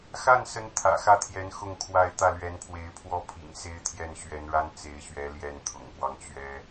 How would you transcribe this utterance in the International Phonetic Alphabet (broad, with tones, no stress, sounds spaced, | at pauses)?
x a˥˩ n s ə˧˥ n t̪ʰ ä̰˨˩ x ä˥˩ t̪ʰ j ɛ˧˥ n x ʊ˥˧ ŋ kʰ w a˥˧ ɪ̯ t̪ ä˥˩ l ɥ ɛ˧˥ n pʰ w e˧˥ ɪ̯ pʰ w ɔ˥ pʰ ḭ˨˩ ŋ s e˥ ɪ̯ t̪ʰ j ɛ˥˩ n ɕ ɥ ɛ˧˥ n ɻ a˥ n t͡s e˧˥ ɪ̯ ɕ ɥ ɛ˧˥ l j ɛ˥˩ n t̪ʰ ʊ̰˨˩ ŋ k w ɑ˦ ŋ t͡ɕ ɥ ɛ˥